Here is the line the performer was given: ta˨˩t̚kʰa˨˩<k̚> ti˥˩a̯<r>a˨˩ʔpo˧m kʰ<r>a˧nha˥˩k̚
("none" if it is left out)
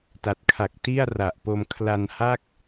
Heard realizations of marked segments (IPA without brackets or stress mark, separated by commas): k̚, r, l